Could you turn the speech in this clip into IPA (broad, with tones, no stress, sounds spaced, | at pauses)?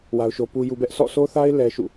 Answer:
w a˦ ʊ̯ ʃ o˦ p u˦ j u˦ b ɛ˦ ʔ sʰ ɔ̰˦˨ s o˦ θ a˦ ɪ̯ l ɛ˦ ʃ ṵ˦˨